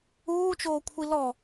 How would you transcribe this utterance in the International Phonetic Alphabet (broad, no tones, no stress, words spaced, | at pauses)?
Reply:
uːt͡ʃoː kʷʰilɔ